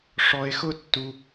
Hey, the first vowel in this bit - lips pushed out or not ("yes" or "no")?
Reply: yes